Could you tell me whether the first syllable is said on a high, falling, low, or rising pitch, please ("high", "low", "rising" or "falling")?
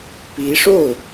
rising